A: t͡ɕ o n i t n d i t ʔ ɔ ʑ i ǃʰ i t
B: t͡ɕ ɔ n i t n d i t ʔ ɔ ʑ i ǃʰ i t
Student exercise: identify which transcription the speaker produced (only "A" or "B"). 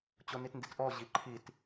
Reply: A